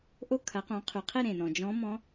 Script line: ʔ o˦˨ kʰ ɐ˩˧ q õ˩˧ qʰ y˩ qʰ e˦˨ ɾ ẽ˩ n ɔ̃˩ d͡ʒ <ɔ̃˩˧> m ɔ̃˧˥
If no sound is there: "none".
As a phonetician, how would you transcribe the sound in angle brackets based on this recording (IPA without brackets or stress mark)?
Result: ɔ̃˧˥